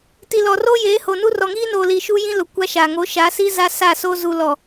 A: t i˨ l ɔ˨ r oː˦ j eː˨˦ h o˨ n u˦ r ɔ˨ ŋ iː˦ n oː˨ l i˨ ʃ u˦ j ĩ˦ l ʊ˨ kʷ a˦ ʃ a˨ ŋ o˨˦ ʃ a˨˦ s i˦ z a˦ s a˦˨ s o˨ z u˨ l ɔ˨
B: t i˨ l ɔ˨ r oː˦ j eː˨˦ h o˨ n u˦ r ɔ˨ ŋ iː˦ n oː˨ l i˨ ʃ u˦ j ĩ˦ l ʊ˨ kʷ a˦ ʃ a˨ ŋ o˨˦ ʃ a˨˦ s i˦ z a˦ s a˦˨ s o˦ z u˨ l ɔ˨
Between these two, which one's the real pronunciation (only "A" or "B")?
B